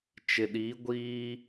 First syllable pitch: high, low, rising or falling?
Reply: low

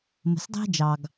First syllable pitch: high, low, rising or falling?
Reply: low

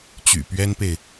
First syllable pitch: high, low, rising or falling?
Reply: low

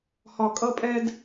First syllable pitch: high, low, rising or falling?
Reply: high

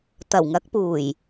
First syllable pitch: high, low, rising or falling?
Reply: low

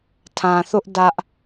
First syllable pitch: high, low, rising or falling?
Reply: low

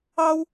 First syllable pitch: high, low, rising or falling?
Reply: high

